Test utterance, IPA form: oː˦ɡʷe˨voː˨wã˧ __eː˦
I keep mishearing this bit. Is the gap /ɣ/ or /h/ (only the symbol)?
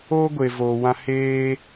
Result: h